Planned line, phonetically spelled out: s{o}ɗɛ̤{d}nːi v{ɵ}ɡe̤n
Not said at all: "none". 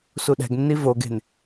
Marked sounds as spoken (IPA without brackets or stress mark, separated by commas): u, ɡ, o